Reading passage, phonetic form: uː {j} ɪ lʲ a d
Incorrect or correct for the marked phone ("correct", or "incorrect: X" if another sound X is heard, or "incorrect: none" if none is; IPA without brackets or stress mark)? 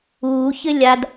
incorrect: ç